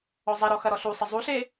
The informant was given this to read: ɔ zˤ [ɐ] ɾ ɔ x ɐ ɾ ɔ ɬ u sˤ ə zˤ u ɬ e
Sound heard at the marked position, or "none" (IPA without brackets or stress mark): ɐ